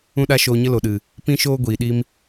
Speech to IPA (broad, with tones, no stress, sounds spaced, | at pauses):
ũ˦ ɗ a˦ ʃ oː˧ ɲ ə˦ l o˨ ɗ ɨ˨ | p ĩ˦ ʃ oː˦ ɡʷ iː˨ ɗ i˦ m